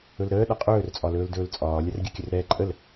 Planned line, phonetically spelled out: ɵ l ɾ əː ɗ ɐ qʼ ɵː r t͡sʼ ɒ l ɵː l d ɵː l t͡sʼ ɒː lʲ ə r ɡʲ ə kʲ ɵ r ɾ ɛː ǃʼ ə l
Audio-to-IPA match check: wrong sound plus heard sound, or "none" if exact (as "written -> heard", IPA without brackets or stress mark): none